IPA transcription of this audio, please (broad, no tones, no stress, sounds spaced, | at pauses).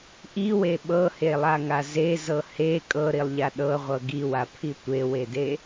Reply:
ʔ i w e ɓ ɤ h e lˠ a ŋ a z e z ɤ h e kʼ ɤ ɾ i lˠ ʎ a ɗ ɤ ʁʷ ɤ ɡ i w a pʰ i tʷ e w e d e